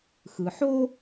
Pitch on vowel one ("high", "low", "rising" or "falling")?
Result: low